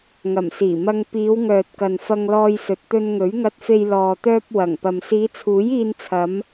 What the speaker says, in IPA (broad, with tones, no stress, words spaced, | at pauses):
ŋɐ˨˩msiː˨˩mɐ˧ŋ piː˨˧wŋœː˨t̚kɐ˨n fɐ˧ŋlɔː˧jsɵ˨t̚ t̪ɵ˧nŋɵ˨˥ɥŋɐ˧t̚fe˧j lɔː˨t̪œː˧p̚ wɐ˨˩ŋpɐ˨m siː˨˧t͡sʰuː˨˥jiː˧nt͡sʰɐ˨˧m